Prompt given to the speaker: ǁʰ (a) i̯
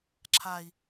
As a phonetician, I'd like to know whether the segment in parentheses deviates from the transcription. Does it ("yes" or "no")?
no